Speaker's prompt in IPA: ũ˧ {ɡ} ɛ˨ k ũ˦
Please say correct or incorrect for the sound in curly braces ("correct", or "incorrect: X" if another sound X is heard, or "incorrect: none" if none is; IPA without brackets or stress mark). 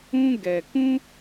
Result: correct